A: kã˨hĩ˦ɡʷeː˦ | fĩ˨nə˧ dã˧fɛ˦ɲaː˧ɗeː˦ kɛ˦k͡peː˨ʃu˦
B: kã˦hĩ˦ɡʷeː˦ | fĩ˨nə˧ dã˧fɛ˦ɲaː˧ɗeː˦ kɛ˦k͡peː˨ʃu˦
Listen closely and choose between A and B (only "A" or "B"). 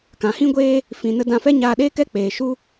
A